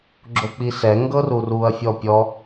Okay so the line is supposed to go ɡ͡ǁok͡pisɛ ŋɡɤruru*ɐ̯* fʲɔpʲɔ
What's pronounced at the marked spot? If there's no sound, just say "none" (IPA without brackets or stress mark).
ɐ̯